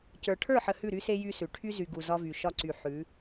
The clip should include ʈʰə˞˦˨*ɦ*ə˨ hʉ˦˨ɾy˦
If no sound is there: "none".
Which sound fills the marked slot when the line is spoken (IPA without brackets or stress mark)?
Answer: ħ